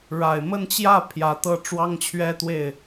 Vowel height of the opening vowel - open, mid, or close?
open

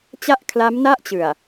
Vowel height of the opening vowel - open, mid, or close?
open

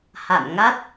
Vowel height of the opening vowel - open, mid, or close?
open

